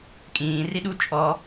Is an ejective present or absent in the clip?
present